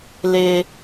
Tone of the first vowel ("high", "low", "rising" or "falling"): high